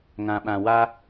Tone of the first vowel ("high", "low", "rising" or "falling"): low